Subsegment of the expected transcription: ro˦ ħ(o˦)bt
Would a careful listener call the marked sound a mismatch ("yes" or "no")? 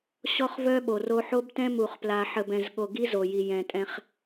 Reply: no